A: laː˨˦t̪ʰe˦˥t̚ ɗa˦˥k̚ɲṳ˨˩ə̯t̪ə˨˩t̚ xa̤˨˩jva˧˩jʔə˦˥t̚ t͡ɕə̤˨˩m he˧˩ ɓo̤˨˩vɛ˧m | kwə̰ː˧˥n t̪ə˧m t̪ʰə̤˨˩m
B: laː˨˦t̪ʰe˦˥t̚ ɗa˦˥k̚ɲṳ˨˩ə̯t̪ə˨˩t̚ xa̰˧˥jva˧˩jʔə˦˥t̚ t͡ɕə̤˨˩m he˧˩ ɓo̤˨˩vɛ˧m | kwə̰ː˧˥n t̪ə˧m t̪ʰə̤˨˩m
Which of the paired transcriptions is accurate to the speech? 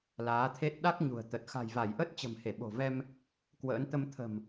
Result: A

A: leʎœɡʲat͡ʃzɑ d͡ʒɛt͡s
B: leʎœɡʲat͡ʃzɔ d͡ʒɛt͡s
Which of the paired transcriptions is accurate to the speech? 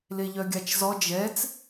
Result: B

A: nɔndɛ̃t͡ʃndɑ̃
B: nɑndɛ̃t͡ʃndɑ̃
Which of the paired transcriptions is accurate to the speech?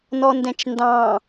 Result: A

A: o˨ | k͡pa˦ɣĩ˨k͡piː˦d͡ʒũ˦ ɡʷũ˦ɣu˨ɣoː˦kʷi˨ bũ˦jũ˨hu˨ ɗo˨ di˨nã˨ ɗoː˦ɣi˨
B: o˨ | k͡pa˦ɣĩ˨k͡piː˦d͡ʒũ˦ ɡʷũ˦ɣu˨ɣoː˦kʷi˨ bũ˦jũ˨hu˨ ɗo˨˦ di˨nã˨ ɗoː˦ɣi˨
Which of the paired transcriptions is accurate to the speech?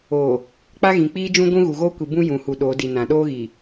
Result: B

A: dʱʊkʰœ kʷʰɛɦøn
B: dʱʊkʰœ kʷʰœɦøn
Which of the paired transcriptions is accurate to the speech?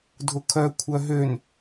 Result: B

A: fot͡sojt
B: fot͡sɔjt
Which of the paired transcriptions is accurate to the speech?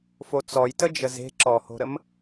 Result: B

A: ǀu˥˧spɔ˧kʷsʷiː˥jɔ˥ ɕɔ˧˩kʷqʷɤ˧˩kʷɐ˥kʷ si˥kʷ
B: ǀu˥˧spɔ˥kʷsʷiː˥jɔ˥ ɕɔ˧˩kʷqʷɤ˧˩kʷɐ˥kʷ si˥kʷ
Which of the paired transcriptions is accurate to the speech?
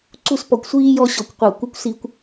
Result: A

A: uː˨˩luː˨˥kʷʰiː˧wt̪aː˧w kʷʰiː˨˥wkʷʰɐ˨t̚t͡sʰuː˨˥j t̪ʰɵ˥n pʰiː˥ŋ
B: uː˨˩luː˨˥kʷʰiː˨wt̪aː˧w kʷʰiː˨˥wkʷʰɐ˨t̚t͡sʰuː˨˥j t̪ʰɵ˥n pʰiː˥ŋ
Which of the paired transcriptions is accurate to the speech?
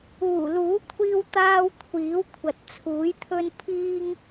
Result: A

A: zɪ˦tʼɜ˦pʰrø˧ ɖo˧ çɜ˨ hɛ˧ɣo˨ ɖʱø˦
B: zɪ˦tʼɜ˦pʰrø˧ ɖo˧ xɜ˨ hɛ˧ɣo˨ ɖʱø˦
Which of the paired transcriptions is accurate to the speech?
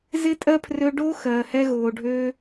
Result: B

